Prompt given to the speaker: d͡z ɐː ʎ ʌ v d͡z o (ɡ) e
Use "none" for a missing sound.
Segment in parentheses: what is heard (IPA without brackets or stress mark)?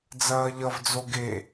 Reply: ɡ